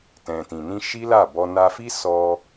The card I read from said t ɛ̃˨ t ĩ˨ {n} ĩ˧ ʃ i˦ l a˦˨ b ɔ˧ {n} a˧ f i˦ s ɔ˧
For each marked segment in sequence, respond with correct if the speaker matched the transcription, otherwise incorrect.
correct, correct

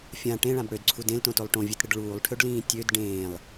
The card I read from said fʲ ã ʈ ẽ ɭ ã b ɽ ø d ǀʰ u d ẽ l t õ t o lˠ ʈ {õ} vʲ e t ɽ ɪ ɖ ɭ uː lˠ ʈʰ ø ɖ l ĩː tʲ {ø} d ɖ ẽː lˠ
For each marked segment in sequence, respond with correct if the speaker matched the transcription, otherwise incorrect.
correct, correct

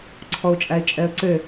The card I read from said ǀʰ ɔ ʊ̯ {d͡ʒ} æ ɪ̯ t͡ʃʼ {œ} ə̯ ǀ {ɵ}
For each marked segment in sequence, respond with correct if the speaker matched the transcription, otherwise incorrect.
incorrect: t͡ʃʼ, incorrect: ɛ, incorrect: ø

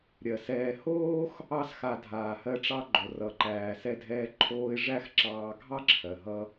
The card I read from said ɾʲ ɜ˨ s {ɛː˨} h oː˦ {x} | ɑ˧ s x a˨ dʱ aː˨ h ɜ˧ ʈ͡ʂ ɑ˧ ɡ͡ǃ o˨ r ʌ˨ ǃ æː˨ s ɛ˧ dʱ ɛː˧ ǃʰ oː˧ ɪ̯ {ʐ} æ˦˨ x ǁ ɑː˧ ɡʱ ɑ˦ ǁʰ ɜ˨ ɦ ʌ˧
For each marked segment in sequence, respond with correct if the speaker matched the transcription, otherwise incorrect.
correct, correct, correct

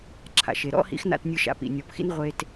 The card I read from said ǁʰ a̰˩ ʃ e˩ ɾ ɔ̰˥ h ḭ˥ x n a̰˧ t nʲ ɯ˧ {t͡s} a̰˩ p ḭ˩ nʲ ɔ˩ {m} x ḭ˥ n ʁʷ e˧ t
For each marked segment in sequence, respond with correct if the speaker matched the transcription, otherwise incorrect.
incorrect: ʃ, incorrect: p

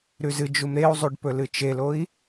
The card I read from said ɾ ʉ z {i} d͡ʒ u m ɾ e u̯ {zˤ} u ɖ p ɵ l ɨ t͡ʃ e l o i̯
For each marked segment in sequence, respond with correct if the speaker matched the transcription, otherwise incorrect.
incorrect: ɨ, correct

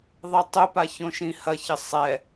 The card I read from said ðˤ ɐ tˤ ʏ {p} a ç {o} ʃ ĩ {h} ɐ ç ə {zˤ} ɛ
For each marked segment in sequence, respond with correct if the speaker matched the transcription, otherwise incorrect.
correct, incorrect: õ, correct, incorrect: sˤ

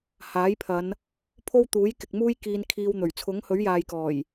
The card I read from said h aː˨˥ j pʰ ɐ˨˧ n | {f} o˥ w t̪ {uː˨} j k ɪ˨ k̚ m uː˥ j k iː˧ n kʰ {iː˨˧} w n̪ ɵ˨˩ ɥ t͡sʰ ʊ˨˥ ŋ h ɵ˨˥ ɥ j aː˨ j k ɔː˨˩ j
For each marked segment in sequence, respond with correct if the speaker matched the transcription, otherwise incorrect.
incorrect: pʰ, incorrect: uː˨˥, incorrect: iː˧

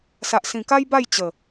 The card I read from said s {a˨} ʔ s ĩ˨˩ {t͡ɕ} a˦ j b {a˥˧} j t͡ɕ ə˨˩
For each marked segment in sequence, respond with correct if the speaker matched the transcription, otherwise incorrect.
correct, incorrect: k, correct

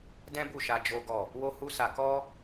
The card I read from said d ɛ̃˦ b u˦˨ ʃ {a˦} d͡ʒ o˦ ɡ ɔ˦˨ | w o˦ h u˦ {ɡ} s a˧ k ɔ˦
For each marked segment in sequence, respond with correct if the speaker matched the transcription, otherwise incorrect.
incorrect: a˧, incorrect: none

